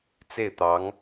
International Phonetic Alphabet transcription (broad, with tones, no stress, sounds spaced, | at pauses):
t͡s e˥˩ ɪ̯ t̪ ɑ˧˥ ŋ